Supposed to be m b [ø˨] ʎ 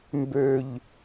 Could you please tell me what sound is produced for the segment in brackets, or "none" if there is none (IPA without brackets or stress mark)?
ø˨